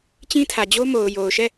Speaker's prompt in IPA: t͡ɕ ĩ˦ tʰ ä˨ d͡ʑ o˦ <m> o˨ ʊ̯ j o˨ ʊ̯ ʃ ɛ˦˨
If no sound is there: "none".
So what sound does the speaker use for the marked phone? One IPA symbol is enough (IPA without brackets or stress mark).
m